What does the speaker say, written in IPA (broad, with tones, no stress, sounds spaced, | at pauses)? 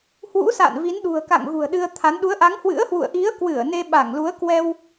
h w ṵ˧˥ s a̰˧˨ n v i˨˦ n ɗ ṳ˨˩ ə̯ k a̰˧˨ ŋ ɣ ṳ˨˩ ə̯ ɗ ɨ˧ ə̯ t̪ʰ a˨˦ n ɗ u˨˦ ə̯ ʔ a˨˦ ŋ h w ɨ̰˧˥ ə̯ h w ṵ˧˨ ə̯ ʔ i˨˦ ə̯ k w ɨ˧˩ ə̯ n e˧ ɓ a˧˩ ŋ l u˨˦ ə̯ k w ɛ˧ w